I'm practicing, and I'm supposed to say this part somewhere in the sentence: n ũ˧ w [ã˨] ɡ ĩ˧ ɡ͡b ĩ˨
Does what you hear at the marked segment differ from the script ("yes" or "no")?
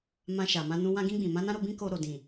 yes